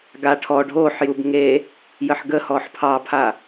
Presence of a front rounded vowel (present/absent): absent